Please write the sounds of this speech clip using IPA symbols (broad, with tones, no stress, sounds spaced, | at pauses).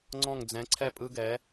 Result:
ŋ͡ǀ ɔ̃˥˧ ŋ d͡z ɛ̃˧˥ ǀʰ ɛ˥˧ pʼ ɯ˥ ɡ ɛ˧˥